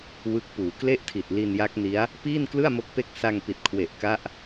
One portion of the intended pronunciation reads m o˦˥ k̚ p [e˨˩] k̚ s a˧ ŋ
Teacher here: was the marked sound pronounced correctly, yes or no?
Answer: no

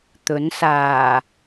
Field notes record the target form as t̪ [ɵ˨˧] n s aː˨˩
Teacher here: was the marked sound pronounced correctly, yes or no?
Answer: no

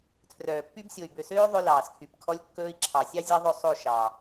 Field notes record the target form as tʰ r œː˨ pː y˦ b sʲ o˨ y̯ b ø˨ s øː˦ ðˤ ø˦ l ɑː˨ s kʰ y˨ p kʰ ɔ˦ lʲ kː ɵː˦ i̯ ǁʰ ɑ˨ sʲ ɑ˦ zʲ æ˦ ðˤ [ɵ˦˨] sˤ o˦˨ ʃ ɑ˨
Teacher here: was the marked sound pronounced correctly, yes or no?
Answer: yes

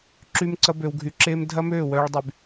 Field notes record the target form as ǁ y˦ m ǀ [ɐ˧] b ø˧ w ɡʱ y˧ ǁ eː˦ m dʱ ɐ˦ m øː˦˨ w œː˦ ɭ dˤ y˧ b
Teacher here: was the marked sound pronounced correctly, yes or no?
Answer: no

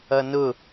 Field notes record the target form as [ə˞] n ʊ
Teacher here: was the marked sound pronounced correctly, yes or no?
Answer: no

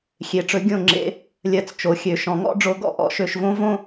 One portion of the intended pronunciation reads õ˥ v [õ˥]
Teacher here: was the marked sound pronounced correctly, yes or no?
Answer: yes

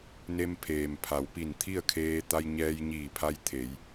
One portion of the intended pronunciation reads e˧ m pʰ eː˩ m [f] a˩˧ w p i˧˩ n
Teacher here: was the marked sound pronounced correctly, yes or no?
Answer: no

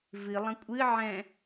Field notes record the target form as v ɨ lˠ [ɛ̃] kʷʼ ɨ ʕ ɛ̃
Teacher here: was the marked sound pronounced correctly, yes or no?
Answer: no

